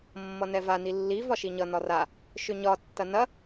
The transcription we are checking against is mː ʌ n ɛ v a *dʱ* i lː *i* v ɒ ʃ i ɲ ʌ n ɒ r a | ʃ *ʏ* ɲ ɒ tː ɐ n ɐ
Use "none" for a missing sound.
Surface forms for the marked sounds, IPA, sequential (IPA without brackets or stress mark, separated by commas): n, i, ʏ